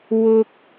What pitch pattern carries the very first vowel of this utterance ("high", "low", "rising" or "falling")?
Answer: high